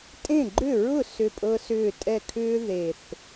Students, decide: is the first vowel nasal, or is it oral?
nasal